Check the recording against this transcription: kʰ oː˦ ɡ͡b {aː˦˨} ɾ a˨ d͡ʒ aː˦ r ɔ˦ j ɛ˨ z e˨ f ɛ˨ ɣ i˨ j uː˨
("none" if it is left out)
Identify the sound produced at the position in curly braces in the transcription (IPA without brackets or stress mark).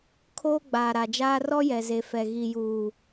aː˨